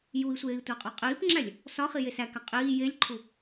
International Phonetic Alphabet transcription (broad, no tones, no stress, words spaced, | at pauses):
jui̯sʷeːi̯ tʷæqʼɒqʼiːpŋ͡ǁælʲ | sɒ χijesækæ qʼiː jelʲǃʰu